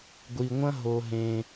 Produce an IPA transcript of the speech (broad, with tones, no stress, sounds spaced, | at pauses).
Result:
ɡʷ i˧ ŋʷ ɐ̃˦ ɦ o˧ ɦ ẽ˧